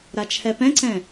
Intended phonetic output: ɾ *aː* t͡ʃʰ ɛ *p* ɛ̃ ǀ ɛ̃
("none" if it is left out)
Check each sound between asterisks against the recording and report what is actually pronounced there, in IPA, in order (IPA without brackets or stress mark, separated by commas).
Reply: a, p